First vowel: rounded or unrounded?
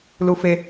rounded